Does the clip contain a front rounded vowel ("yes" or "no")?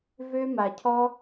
yes